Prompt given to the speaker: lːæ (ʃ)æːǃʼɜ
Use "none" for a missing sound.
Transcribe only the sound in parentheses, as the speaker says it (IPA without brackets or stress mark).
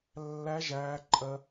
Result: ʒ